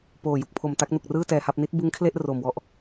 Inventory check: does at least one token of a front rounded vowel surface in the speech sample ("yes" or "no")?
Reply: no